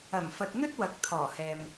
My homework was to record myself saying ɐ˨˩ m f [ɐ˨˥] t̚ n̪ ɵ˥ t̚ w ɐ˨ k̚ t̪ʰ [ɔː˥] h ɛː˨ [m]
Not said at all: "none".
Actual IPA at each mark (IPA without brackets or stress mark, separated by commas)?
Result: ɐ˨, ɔː˨˩, m